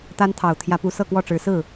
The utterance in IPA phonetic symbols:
t̪ a˥ n t̪ʰ ɑ˨˩ ʊ̯ t̪ʰ j ä˧˥ p u˧˥ s ɤ˥˧ k w ɔ˥˩ ʈ͡ʂ ɻ̩˧˥ s ɹ̩˥˩

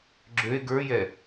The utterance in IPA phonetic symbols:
ɡ͡ǁ ø e̯ ɡ ə˞ j ɛ

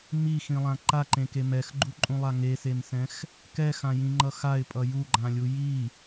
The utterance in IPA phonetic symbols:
m i x ĩ lˠ ã ǃ a ǃ ẽ k e m ɛ x ɡ͡ǃ u ǃʼ ũ lˠ a ŋ e s e m s ɛ̃ x | k ɛ x ã j ĩ ŋ͡ǃ ʌ x a ɪ̯ pʼ ʌ j u ɡ͡ǃ ã lʲ u j i

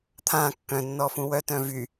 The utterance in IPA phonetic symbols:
t̪ʰ ã kː œ̃ nː ɔ f ũ w œ t œ̃ v y

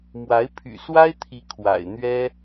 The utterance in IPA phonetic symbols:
m w a˧˥ ɪ̯ pʰ y̰˨˩ s w a˥ ɪ̯ t̪ʰ i˧˥ kʰ w a̰˨˩ ɪ̯ n̪ ɥ ɛ˥

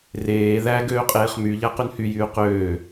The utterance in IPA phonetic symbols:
r eː ð æ ɡ øː qʼ eː χ m y ʎ æ q y n h y j yː q øː

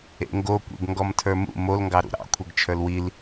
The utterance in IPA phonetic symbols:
ḛ ŋ ɡ o kʷ ḛ ɡ ŋ ɡ ɔ m tʰ ə˞ m ṵ m o l ŋ ɡ ɑ ɾ ṵ ɾ ɑ̰ kʷʰ e ɡ t͡ʃʰ ə˞ l w i l

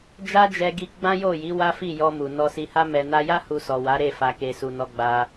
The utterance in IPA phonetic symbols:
d͡ʒ a˦ d͡ʒ ɛ˧ ɡ i˧ ɡ͡b ã˦ j o˦˨ j i˨˦ w a˦ f i˦˨ j ɔ˧ m u˨ n ɔ˧ s i˧ h a˧ m ɛ˨ n a˧ j a˦ h u˧ s ɔ˨ w a˨˦ ɾ e˦˨ f a˨ k e˨ s u˨ n ɔ˧ ɡ͡b a˧

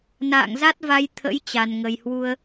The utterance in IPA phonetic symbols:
n a̰ː˧˨ ŋ z a˦˥ t̚ v a˧ j t̪ʰ ə̰˧˥ j t͡ɕ a˨˩ n ŋ ə˨˩ j h w u˧ ə̯

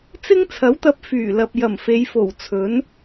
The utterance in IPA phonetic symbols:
t͡s ɪ˥ ŋ t͡sʰ ɐ˨˥ w t̪ ɐ˧ p̚ f yː˨˩ l ɐ˨ p̚ j ɐ˨˩ m f e˨˧ j f o˨˩ w t͡sʰ ɵ˨˥ n

